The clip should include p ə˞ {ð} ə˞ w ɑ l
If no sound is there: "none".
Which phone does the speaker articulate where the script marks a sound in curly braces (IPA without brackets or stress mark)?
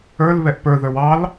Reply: ð